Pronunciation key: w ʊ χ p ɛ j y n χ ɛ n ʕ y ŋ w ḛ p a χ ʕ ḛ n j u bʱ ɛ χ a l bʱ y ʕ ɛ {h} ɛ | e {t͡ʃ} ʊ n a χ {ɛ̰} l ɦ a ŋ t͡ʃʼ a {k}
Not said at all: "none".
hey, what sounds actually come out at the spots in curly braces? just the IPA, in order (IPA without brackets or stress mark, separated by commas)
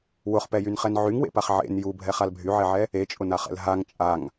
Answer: ʕ, t͡ʃʼ, ɛ̰, ŋ